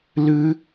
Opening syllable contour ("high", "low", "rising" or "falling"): high